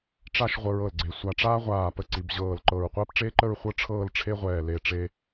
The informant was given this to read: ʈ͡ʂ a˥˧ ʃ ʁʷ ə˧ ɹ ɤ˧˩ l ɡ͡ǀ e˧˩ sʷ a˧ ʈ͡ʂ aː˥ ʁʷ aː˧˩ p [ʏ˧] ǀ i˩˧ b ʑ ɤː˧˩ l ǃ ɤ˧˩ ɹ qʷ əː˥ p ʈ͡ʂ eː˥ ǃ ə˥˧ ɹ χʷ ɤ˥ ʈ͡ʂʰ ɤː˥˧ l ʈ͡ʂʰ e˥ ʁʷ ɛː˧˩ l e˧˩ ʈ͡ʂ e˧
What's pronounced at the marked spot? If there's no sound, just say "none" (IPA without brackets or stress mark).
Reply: ə˧